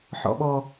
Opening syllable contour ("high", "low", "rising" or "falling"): low